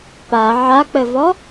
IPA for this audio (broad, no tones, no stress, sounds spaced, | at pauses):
p a ʕ a k͡p ɘ v ɔ